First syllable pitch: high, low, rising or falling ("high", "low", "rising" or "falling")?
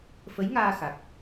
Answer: rising